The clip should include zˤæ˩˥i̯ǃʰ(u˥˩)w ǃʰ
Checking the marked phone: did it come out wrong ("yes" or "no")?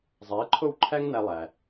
yes